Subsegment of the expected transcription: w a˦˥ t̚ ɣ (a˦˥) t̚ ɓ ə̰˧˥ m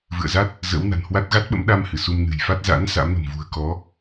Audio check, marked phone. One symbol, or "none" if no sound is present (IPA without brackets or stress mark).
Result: a˦˥